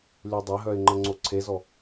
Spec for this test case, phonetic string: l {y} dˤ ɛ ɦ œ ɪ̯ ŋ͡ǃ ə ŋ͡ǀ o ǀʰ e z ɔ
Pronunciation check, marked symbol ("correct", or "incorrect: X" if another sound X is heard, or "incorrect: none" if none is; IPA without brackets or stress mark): correct